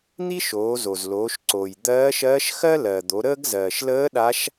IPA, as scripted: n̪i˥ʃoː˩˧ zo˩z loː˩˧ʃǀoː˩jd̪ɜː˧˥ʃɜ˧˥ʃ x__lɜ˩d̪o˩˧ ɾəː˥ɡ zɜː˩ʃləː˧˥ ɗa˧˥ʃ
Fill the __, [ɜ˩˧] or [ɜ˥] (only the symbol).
ɜ˥